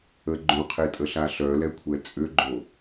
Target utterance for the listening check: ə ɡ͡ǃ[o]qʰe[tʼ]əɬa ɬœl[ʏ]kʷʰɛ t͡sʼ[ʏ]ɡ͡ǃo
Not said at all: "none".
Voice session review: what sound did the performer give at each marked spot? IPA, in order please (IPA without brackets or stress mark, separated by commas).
õ, tʼ, ɛ, ʏ